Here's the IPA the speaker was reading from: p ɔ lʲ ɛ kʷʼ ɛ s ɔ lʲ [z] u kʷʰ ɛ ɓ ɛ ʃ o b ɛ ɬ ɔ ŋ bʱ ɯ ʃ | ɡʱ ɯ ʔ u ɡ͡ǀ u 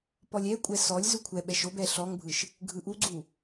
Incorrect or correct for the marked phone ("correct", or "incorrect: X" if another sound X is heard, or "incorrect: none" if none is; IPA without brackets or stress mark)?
correct